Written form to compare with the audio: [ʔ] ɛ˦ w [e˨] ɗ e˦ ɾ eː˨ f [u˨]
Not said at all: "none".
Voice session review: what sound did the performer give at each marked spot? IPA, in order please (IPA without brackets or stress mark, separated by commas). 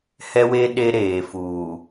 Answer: h, e˦, uː˨